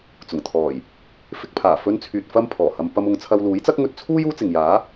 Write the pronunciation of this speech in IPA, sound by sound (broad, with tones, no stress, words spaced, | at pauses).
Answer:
t͡sʊ˨˩ŋt̪ʰɔː˨˩j | fɪ˧k̚pʰaː˨˩ fɵ˧nt͡sʰyː˨t̚ fɐ˥mpʰɔː˨˩hɐ˧m pɐ˥m ʊ˨˧ŋt͡sʰɐ˧w luː˨˥jt͡sɐ˥k̚ŋɵ˧t̚ t͡sʰuː˥j uː˥t͡sɪ˨ŋjaː˨˥